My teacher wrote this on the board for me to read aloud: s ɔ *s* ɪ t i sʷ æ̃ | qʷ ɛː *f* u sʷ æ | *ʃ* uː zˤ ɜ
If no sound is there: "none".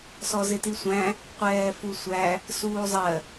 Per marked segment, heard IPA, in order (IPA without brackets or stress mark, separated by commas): z, f, s